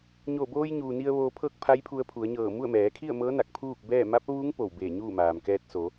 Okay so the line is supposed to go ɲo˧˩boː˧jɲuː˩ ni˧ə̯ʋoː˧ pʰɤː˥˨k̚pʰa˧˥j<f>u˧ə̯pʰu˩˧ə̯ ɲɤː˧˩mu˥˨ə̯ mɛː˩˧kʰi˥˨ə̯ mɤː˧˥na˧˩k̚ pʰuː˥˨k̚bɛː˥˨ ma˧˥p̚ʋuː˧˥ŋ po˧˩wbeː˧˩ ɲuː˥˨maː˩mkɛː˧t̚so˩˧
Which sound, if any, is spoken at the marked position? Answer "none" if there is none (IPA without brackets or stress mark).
pʰ